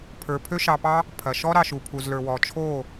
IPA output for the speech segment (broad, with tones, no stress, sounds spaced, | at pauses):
pʰ ə˞˨ pʰ ø˧ ʃ ɑ˨ p ɑ˧ | pʰ ɐ˨ ʃ ɔ˧ ɾ ɑ˨ ʃ u˨ pʰ u˨ z l ə˞˨ w ɔ˨ t͡ʃʰ o˦˨